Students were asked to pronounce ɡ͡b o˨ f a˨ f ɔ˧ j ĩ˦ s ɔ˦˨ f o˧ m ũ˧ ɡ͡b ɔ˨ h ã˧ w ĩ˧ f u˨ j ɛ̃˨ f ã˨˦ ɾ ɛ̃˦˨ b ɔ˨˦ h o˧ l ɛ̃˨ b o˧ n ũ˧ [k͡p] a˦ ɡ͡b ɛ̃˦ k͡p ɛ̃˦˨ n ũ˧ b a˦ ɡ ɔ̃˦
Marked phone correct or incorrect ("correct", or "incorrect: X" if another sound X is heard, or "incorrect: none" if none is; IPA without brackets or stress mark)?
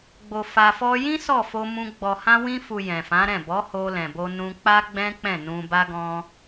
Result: correct